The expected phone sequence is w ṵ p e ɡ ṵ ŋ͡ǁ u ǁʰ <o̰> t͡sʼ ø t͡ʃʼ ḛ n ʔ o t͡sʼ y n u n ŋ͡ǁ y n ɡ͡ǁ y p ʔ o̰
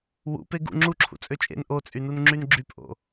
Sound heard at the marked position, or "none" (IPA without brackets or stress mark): ṵ